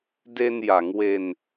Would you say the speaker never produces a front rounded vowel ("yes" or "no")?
yes